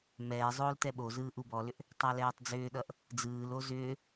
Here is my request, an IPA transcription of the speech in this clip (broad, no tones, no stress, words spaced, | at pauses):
mɛː zˤoːltɛɓozɯː ʔubɔlʏʔ | tˤælɛːtˤd͡zʏːɗʌʔ | d͡zɯːlo zʏː